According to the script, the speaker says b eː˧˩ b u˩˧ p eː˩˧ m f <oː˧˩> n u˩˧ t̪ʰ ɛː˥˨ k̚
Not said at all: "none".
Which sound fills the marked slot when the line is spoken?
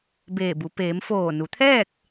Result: oː˧˩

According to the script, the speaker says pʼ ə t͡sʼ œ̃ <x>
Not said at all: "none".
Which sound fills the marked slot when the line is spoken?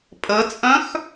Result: x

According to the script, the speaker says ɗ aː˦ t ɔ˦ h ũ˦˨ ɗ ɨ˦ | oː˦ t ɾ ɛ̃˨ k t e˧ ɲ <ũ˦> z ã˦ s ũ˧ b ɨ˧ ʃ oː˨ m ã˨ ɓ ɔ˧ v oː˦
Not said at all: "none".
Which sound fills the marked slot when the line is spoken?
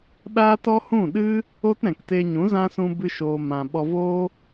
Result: ũ˨˦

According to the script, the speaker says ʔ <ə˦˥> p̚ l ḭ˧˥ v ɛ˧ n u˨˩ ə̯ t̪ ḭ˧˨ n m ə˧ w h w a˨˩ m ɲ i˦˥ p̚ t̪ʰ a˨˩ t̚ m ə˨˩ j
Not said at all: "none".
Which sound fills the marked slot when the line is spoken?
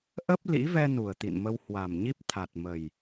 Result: ə˦˥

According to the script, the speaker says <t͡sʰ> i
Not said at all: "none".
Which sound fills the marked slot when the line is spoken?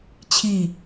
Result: t͡ɕʰ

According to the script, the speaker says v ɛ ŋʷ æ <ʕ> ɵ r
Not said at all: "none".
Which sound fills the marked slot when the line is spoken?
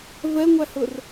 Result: h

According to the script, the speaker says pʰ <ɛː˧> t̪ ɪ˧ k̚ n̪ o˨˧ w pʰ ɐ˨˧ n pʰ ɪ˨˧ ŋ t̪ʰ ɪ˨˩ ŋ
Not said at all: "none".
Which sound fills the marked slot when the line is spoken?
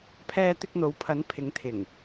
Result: ɛː˧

